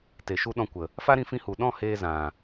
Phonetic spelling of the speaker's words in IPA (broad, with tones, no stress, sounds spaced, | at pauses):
t e˨ ʃ u˧ ɗ ɔ̃˧ kʷ ə˨ | f a˦ ɾ ĩ˧ f ĩ˧ h u˨ ɗ ɔ̃˦˨ h eː˦ z ã˨